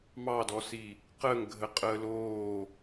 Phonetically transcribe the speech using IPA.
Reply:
m ɑ d ɔ s i | q ə ŋ ɡʱ ə qʼ əː l oː

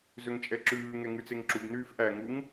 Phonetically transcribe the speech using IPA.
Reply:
z ø ŋ t͡ʃʼ ɛ ǁ ʉː ŋ ɛ ŋ ʉ t͡s e ŋ ǁ u b n yː f ʔ æ ŋ u ŋ

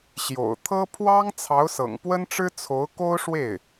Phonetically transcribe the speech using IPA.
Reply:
ɕ j o̰˨˩ ʊ̯ t̪ʰ ɤ˥ pʰ w ɑ˥ ŋ t͡sʰ ɑ˧˥ ʊ̯ s ɤ̰˨˩ ŋ p w ə˥ n ʈ͡ʂ ɻ̩˥ t͡sʰ o˧˥ ʊ̯ k o˥ ʊ̯ ʂ w e˥˩ ɪ̯

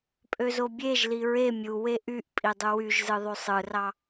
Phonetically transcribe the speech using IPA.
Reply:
pʼ ø z o bʲ e ʒ l i ɹ e mʲ u w e ʔ y ʔ pʼ i dˤ u w y ʒ z ɯ ðˤ y sˤ ɯ r ɑ

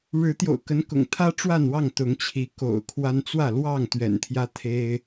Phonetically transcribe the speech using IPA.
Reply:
ɻ ɻ̩˨˦ t̪ j o̰˨˩ ʊ̯ k ə˨˦ n k ʊ̰˨˩ ŋ t̪ʰ ä˦ ʈ͡ʂ w a˥˨ n w ɑ˥˨ ŋ t̪ ʊ˨˦ ŋ t͡ɕʰ i˨˦ k o̰˨˩ ʊ̯ kʰ w a˦ n t͡s w ä˥˨ l w ɑ˥˨ ŋ t̪ ɥ ɛ̰˨˩ n t̪ʰ j ä˦ t̪ʰ e˦ ɪ̯

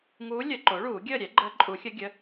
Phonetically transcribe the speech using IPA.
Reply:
ŋ uː˧˥ lʲ ə˨˩˦ ǃ o˩˥ ɭ uː˨˩˦ ɡʲ əː˥˨ ɾʲ ɛ˩˥ ɡ͡ǃ əː˧˥ ǃʼ u˨˩˦ xʲ ə˧˥ ɡʲ ə˩˧˩

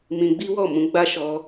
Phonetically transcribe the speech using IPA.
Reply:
m ĩ˧ ɡ͡b i˦ w ɔ˦˨ m ũ˨˦ ɡ͡b a˦ ʃ ɔ˧

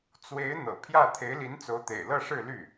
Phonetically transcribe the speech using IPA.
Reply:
t͡s w e˧˥ ɪ̯ n̪ ɤ̰˨˩ pʰ j ä˥˩ t̪ʰ e˧˥ ɪ̯ l i˧˥ n t͡s o˧˥ ʊ̯ t̪ ḛ˨˩ ɪ̯ l ɤ˥˧ ʂ ɻ̩˥˧ l y˥˩

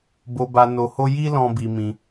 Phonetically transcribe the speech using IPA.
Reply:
b o˧ b a˧ n o˧ h o˦ j i˦ l ɔ̃˧ b i˧ m ĩ˧

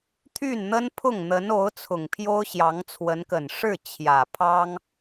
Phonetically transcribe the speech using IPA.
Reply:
t̪ʰ y˥˩ n n̪ ə˥ n pʰ ʊ˥˩ ŋ n̪ ə˧˥ n o˧˥ ʊ̯ t͡sʰ ʊ˨˩ ŋ pʰ j o˥ ʊ̯ ɕ j ɑ˧˥ ŋ t͡sʰ w ə˧˥ n k ə˨˩ n ʂ ɻ̩˥˩ t͡ɕʰ j ä˨˩ pʰ ɑ˥ ŋ

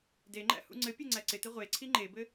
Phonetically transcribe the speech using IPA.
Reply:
d e ŋ͡ǃ æ̰ h ṵ ŋ͡ǀ ɘ pʲ e ŋ͡ǀ æ ǀ ɪ t ɪ ʁʷ e ǀʰ i ŋ͡ǃ e b ɘ

